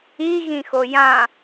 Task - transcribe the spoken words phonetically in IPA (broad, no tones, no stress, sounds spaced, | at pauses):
i ɣ ĩ x o j ã